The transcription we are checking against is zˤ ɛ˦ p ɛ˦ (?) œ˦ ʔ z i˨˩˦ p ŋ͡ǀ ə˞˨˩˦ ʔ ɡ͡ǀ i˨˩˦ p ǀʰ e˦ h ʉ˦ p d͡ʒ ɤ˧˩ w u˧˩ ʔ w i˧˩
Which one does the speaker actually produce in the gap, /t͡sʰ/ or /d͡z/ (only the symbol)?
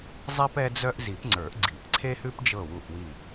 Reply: d͡z